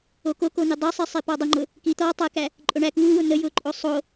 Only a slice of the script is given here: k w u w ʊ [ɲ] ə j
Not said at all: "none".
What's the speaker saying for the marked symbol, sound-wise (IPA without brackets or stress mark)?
n̪